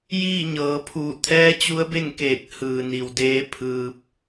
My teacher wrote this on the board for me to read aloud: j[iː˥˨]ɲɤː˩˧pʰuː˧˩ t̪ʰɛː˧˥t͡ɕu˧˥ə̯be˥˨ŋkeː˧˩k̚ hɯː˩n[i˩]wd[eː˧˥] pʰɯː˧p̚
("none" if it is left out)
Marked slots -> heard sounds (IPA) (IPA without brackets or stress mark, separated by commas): iː˥˨, i˩, eː˧˥